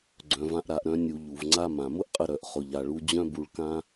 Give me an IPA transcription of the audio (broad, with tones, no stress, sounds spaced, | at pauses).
ɡ͡ǀ œ̃˩ v ã˧ ʔ ɾ a˩ ʔ ɾ œ̃˧ nʲ u˩ ʎ u˩ v ŋ͡ǀ a˧ m ã˩ m ʊ˥ ʔ qʼ ə˧ ɾ œ˩ ʔ χ ʊ˩ ʎ a˩ ɭ u˧ d͡ʑ œ̃˥ b u˧ ɭ k ã˥